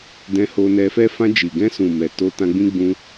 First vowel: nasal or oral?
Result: nasal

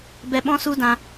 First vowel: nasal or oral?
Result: oral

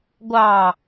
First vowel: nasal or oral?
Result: oral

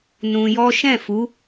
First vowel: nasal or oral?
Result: nasal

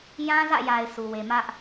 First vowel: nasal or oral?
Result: nasal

